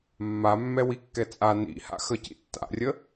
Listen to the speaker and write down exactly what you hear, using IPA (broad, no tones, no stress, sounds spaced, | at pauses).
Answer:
mː a mː ɛ w i kː ɛ t͡sʼ a n ḭ h a̰ x ə c ḭ tː a̰ rʲ ə